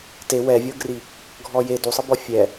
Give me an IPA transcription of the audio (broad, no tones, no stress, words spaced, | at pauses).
te wɛvʲɤɡri | ɡʱɔje dusˤɯbɔ fʲɛ